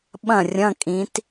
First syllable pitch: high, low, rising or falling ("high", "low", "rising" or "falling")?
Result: falling